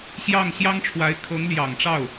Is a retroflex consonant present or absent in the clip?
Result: present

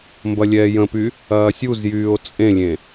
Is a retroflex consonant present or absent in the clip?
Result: absent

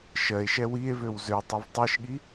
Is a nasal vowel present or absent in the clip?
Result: absent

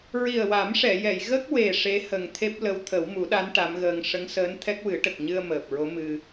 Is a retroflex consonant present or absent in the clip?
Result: present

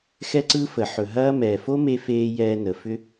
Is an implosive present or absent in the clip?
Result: absent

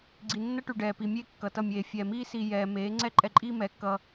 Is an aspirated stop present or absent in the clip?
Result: absent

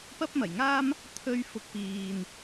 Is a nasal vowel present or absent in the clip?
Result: absent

